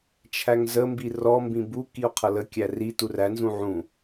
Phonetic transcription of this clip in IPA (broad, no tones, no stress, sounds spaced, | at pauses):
t͡ʃʰ æ ŋ z ə m b i r ɔ m b ĩ b u k i o̯ qʰ ʌ l ə kʲ æ r i t u r æ n z ũ ʕ ũ